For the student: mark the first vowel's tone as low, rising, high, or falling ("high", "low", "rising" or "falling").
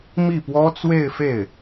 falling